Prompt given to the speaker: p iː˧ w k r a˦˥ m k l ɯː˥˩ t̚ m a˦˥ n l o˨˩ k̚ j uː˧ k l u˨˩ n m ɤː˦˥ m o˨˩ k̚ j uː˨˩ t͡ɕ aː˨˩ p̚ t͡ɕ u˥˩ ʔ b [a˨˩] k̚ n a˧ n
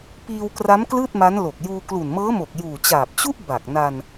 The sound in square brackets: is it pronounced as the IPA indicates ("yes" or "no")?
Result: yes